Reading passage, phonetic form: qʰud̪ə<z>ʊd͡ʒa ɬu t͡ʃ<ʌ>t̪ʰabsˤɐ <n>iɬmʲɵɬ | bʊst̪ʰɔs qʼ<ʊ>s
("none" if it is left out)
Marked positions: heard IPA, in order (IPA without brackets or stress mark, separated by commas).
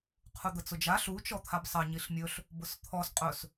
t͡s, ɔ, ɲ, ɵ